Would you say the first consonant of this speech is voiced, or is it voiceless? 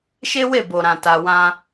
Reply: voiceless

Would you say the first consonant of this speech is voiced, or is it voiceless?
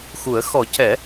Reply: voiceless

